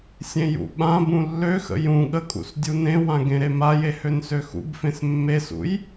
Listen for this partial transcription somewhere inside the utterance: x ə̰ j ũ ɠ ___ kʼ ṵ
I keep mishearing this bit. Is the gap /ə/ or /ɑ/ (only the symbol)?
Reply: ə